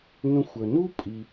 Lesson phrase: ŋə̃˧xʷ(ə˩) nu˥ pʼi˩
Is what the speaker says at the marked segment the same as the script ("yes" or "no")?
yes